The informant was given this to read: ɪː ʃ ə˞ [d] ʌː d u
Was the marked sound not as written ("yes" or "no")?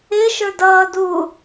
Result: no